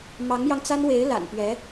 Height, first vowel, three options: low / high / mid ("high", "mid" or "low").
low